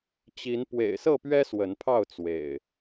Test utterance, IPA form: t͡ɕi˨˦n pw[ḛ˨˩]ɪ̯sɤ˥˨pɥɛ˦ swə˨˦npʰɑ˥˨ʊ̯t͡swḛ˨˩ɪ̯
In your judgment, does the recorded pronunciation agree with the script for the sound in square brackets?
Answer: yes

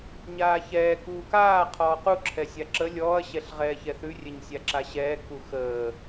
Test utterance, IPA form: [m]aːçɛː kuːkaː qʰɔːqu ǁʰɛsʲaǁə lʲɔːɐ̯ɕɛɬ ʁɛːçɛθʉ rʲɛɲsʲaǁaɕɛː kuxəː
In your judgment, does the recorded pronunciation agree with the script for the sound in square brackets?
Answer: no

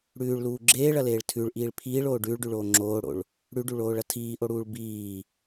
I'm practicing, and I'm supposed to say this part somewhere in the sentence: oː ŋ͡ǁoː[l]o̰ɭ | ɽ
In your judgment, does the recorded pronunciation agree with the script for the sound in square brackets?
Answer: no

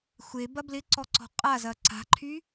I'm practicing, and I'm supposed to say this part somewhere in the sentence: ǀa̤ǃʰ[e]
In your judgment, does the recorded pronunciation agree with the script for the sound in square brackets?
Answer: no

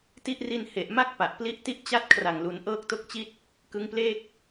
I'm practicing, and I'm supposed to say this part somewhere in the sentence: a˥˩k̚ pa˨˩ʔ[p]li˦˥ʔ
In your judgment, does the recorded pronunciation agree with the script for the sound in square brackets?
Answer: yes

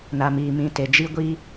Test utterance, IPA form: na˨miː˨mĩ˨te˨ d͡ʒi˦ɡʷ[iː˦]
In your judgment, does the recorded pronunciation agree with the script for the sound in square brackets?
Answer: yes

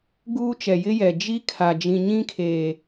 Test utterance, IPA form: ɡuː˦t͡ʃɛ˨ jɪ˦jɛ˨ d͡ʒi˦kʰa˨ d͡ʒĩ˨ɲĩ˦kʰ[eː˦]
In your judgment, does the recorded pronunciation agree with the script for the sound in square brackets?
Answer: no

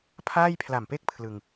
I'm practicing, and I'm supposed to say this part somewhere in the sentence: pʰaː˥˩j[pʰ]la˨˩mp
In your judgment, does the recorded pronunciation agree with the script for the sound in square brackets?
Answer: yes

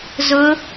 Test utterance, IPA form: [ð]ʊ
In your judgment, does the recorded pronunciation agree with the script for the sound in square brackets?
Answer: no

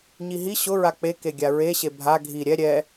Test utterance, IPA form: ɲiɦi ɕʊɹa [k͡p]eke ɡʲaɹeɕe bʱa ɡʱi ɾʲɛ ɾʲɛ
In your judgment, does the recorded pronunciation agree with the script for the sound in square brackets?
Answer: yes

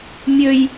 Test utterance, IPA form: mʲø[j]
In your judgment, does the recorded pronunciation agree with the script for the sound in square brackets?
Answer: yes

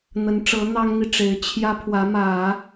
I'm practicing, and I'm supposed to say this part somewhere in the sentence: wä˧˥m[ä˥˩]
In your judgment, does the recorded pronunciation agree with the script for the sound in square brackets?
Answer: no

